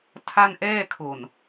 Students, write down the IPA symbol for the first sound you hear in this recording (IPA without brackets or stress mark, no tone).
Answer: tʰ